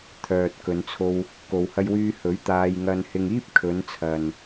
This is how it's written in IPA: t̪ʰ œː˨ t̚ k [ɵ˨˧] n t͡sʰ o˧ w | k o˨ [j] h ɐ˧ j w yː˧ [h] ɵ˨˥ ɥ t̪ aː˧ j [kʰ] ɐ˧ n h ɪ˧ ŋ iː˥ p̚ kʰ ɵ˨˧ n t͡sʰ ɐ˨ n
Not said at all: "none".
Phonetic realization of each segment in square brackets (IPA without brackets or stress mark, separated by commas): ɵ˨˧, w, h, ŋ